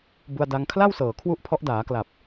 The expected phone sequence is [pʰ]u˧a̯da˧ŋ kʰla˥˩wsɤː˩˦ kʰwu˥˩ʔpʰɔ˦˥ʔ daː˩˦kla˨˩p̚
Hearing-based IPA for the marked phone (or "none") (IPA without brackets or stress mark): b